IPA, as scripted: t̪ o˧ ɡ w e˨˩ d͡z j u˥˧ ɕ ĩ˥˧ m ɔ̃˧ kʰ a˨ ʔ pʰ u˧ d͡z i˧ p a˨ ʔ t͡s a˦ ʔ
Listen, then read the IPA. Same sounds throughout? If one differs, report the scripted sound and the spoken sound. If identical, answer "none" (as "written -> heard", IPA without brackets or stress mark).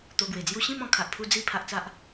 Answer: p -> pʰ